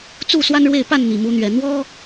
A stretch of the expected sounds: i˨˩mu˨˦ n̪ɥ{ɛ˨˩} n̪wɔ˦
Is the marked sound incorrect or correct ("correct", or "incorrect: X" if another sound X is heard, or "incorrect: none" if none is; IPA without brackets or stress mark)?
correct